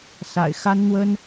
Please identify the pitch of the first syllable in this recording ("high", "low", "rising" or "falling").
low